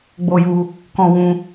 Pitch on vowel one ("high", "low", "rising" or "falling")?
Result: high